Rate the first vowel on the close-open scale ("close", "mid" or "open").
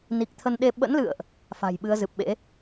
close